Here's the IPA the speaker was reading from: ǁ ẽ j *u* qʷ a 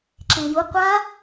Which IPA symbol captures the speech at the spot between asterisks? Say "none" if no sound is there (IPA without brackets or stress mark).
u